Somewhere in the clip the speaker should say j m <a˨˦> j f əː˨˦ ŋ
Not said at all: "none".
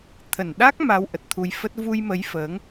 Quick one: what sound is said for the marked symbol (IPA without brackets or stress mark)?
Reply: ə˨˦